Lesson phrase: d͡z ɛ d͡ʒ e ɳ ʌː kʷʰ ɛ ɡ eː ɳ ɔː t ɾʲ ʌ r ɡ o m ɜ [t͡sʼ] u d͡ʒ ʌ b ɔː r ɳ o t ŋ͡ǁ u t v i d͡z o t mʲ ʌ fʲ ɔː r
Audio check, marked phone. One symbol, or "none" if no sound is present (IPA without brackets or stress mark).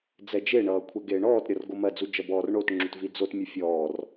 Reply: d͡z